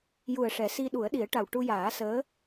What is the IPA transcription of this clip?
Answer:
j u˨˩ ə̯ ʂ ɛ˨˩˦ s i˧ ɗ u˨˩˦ ə̯ ɗ i˨˩˦ ə̯ ʈ a˨˩ w ʈ u˧ j aː˨˩˦ s əː˧˥

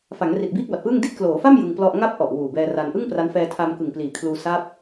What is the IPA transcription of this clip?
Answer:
f a˩˦ ŋ r i˨˩ t̚ b iː˥˩ k̚ b a˨˩ t̚ p ɯː˥˩ ŋ d i˦˥ t̚ k l oː˩˦ f a˥˩ m j ɯ˧ ŋ p l ɔ˥˩ ʔ ŋ a˥˩ p̚ ʔ ɔ˨˩ ʔ w uː˨˩ b ɛː˧ r a˧ n ʔ ɯ˥˩ ŋ p r a˦˥ n f ɛː˧ tʰ a˧ m k ɯ˨˩ ŋ p l iː˨˩ kʰ l uː˧ s a˦˥ p̚

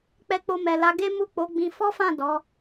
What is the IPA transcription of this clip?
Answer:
k͡p ɛ˧ k͡p o˧ m ɛ˨ l a˨˦ ɡ e˦ m u˦˨ k͡p o˨˦ ɡ͡b ĩ˧ f ɔ˦ f ã˦˨ d ɔ˨˦

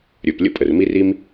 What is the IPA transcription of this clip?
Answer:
ɾʲ ɵ˩ p lʲ ə̰˥ pʼ ə˩ r m i˥ r i˥ m

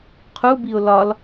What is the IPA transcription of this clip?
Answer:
qʰ u b i ʊ̯ l ɒ l

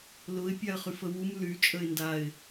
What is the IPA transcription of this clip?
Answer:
l ʊ ɪ̯ pʲ a ə̯ χ y f ə w u m l y t͡ʃʼ ə ɪ̯ n d a ɪ̯

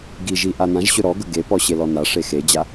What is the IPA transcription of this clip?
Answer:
ɡ i ʒ i ʔ a n ã ʒ ɕ ɵ ɾ ɔ ɡ ɵ ɡ e p ɔ ɕ e l ɔ n a ʂ e x e d͡ʑ a

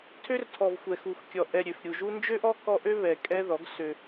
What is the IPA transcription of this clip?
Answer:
tʰ ø˦ r tʰ ɔ˨ v xʷ ɛ˨ x u˨ x kʲ ɔ˨ ʔ ɛ˨ ɾʲ ø˨ f ɾʲ u˨ ʒ u˦ n d͡ʒ ø˦ ʔ ɔ˦ k ɔ˦ ʔ ø˦ β ɛ˨ kʼ ɛ˦ ð ɔ˨˦ ɡ s ø˦

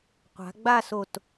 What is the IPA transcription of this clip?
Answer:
qʷ a̤˩˧ ɡ͡b a˥˧ s o˧˩ t

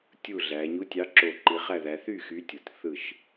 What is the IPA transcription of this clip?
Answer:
tʲ u˧˩ ɮ æ˩˧ ɲ u˨˥ tʲ ɑ˨˥ ǁ o˧˩ ǃ i˩˧ χ æ˧˩ ð æ˩˧ θ y˥˩ x y˨˥ tʲ o˩˧ t θ ɯ˧˩ ʃ

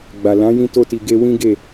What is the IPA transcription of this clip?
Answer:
ɡ͡b a˨ l ã˨˦ j ĩ˧ t o˧ t i˨ ɡ e˧ w ĩ˦ ɡ e˦˨

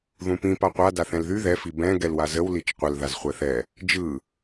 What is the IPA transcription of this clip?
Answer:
ð ũ p ĩ p a qʷ a d a θ ɛ̃ l ð y ð ɛ f i b ɛ̃ ɡ ɛ l w a z ə w l i t͡ʃ qʷ ə l ð a z χʷ ɛ θ ɛ | d͡ʒ ɯ

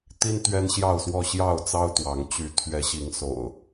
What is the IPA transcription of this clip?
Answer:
t̪ i˦ n t̪ ɥ ɛ˦ n ɕ j ɑ˥˨ ʊ̯ s w ɔ˥˨ ɕ j ɑ˥˨ ʊ̯ t͡s ɑ˦ ʊ̯ t̪ w ɑ˨˦ ŋ t͡ɕ y˨˦ t̪ʰ ɥ ɛ˨˦ ɕ i˨˦ ŋ s o̰˨˩ ʊ̯

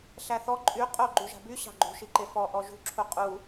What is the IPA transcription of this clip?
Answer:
ɬ æ θ ɔ ǃʼ y qʼ o ɡ͡ǃ y ʒ a̤ b y ɕ ɑ̤ ɡ͡ǃ ṳ ʃ i ǃ e f ɔ ʔ ɔ ʒ ṳ ǁʰ u qʼ u

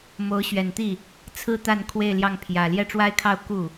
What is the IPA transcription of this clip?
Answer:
m o˧˥ ʊ̯ ɕ ɥ ɛ˨˩ n t̪ i˥˩ | t͡sʰ ɹ̩˥ t̪ a˥˧ n kʰ w e˥˧ ɪ̯ l j ɑ˥˩ ŋ pʰ j ä˨˩ l j ɛ˥˩ ʈ͡ʂ w a˥ ɪ̯ kʰ ɑ˥˧ ʊ̯ k u˥˩

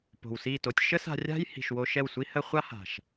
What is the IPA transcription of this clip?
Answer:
p o̤˨ w s i˦˨ t o˧ tʲ ʃ ə˦ s a̤˧ rʲ a̤˦ j h i̤˨ ʃ w o˧ ʃ ɛ˦˨ w sʷ i˦ h ə˦ χʷ a˦ h a̤˨ ʃ

